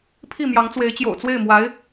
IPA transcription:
pʰ i˥˩ m j ɑ˧˥ ŋ t͡s w e˧˥ ɪ̯ t͡ɕ j o̰˨˩ ʊ̯ t͡s w e˥˩ ɪ̯ m w a˧˥ ɪ̯

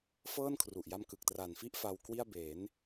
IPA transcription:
f ɤː˥˩ n kʰ r u˨˩ ʔ j a˧ m k ɯ˨˩ k̚ t r a˨˩ n f i˥˩ ʔ f a˧ w k w i˥˩ a̯ b e˩˦ n

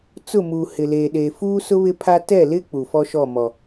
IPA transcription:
t͡s ʊ˦˨ m uː˨ h ɪ˨ l eː˨ ɗ eː˨ f uː˦ s ʊ˦ β ɪ˦ pʰ a˦ t ɛ˦˨ l ɪ˦ k͡p u˨ f ɔ˦ ʃ ɔ˦˨ m ɔ˨

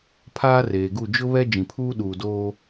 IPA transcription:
pʰ aː˦ r eː˨ ɡ u˦˨ d͡ʒ ʊ˦ β ɛ˦ d͡ʒ ĩ˨ pʰ uː˦ ɗ uː˨ d oː˦

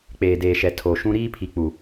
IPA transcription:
k͡p eː˨ d eː˨ ʃ ɛ˨ tʰ o˨ ʃ ũ˦ ɾ iː˦ pʰ i˨ k͡p u˨

